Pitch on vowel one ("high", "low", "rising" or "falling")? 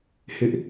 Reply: high